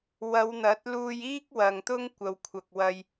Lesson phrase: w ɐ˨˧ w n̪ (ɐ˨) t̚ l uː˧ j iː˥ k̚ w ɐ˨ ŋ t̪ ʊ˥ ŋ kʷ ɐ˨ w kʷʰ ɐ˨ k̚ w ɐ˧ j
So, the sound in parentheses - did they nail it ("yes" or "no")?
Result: no